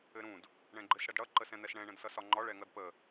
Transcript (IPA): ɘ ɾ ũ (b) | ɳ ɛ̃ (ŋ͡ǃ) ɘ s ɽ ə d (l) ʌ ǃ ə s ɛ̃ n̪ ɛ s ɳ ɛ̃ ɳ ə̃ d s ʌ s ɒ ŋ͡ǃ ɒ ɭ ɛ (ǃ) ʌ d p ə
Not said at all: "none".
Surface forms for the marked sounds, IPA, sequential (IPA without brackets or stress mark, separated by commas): d, ɡ͡ǃ, ɽ, ŋ